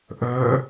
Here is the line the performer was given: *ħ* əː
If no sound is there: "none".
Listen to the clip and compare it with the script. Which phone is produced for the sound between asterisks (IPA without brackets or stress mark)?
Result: ʔ